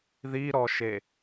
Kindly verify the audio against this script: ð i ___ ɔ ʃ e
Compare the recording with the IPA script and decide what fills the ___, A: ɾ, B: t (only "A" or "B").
A